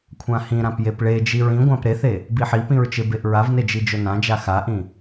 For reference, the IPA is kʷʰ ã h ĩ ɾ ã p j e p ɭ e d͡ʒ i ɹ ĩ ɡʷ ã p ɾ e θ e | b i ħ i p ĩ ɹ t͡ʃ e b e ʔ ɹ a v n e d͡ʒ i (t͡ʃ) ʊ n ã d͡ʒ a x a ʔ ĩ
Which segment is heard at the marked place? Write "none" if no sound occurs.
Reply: d͡ʒ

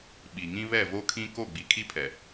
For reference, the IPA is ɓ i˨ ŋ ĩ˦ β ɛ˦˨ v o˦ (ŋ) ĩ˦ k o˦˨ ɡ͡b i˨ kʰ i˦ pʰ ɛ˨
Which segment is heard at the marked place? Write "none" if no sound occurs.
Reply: kʰ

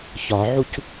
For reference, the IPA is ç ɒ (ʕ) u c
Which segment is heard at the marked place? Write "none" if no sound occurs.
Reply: ʕ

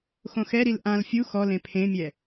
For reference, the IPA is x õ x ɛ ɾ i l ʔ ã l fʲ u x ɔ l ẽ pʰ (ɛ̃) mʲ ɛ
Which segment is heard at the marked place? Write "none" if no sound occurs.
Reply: ẽ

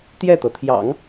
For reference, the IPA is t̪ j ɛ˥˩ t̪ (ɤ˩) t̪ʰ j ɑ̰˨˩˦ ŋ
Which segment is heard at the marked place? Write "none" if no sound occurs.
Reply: ɤ˩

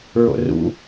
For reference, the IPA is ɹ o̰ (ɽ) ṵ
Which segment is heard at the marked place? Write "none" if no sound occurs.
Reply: r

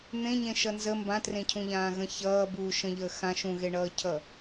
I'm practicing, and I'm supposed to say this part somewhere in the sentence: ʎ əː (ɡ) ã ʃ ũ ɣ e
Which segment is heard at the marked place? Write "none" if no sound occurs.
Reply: x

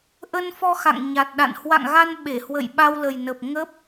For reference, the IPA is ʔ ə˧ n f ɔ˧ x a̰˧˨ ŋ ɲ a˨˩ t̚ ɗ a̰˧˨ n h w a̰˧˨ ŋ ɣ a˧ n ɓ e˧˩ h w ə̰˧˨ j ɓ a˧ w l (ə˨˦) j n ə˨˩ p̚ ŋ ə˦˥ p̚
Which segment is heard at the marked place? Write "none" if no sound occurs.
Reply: ə˨˩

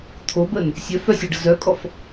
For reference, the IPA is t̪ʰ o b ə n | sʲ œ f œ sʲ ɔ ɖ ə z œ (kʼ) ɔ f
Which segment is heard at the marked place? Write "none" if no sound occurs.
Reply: kʼ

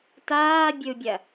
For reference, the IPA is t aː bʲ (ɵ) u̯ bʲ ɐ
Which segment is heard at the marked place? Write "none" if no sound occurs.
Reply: ɵ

